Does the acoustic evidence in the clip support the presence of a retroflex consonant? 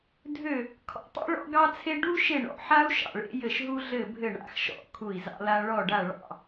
yes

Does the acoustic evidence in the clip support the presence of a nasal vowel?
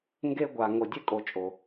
no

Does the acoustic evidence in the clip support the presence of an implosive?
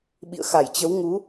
yes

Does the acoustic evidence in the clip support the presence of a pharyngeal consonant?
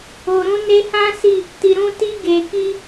no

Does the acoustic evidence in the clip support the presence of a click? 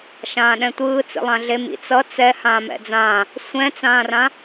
no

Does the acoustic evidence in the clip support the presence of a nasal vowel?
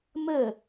no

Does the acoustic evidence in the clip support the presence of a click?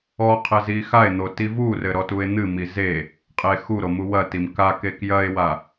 no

